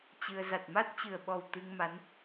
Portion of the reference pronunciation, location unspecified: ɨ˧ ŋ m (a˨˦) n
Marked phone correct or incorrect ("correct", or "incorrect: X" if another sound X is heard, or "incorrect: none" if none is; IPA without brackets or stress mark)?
correct